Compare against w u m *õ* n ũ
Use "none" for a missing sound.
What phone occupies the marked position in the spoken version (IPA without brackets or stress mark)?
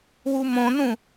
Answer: õ